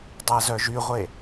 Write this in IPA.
dˤæzœʒyʁʷe

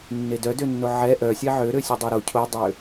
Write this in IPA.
nːedœ dønːoʕɛ ʔœsʲɛ ʕøɾøsʲo dˤoɾo cʰodˤø

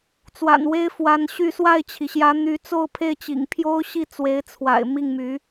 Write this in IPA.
t͡swa̰˨˩nwe˥ɪ̯fwa˧˥nɕy˥˧ swa˥˩ɪ̯t͡ɕʰi˩ɕjä˧˥ n̪y˧˥t͡so˥˧ʊ̯pʰe˥˩ɪ̯t͡ɕḭ˨˩ŋ pʰjo˥ʊ̯ɕi˥˩ t͡swe˧˥ɪ̯t͡sʰwa̰˨˩ɪ̯ mi˥˩ŋmy˧˥

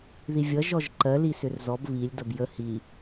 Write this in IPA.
ðivʲʌ ʒɔʒǃɜ lisʏrzɔb βilʲ dʌbjə hi

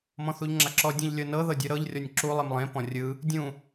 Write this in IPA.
mɔ̃θuʎŋ͡ǁaǁɔ dʲũʎlʲɤnɤ ðɤdʲɯɾɤʎ rʲɔnʲǁu lˠimlˠẽ pɔ̃rʲɯ | dʲũ

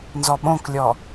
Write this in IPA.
nzɔɓõklʲɔ

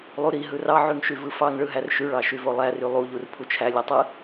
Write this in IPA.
lˠuɾi ɦɯrɑ ʕyŋʃyvɯfɑŋ ɭɯɦærʃy ɭɑʃyvolˠæ rylˠu ʎurpʰut͡ʃʰæ lʲetˤɯ

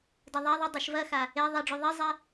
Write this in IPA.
dɐðˤaðˤɨ dˤɘʃvɐxa | e ðˤiɖ͡ʐu ðˤizˤɛ

